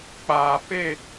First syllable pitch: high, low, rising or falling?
low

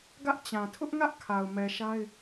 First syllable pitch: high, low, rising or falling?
high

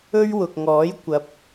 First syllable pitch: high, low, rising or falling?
high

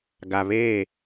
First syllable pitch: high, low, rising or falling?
low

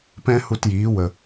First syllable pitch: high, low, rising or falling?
high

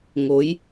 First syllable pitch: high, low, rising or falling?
rising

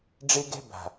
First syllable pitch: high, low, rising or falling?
high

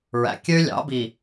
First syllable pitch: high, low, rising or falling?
low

